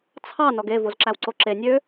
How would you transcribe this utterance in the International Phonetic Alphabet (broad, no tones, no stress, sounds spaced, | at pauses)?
t͡sʰ ɑ n ɔ ɡ e v o z ǁ æ w ǀ o ǁ e nʲ ø